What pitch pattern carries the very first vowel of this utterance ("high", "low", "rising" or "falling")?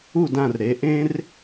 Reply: falling